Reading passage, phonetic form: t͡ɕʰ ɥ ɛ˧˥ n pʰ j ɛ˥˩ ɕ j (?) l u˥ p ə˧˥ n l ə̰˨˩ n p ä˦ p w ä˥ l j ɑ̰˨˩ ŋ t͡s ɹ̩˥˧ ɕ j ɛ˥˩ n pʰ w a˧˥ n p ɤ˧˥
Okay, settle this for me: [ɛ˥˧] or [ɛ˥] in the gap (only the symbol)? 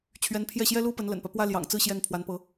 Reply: ɛ˥